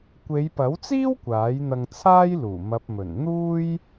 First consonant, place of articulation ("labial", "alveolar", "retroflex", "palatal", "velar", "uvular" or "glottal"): velar